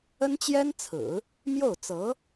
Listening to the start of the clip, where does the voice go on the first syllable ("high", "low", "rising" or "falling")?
high